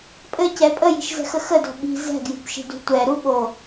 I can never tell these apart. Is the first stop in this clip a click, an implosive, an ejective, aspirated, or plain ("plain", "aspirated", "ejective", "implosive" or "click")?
ejective